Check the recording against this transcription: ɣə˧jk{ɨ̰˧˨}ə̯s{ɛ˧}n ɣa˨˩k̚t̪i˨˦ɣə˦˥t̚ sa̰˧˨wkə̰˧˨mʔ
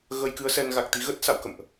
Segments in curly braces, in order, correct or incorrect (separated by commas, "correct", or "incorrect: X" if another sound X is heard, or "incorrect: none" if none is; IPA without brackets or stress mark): incorrect: ɨ˨˦, correct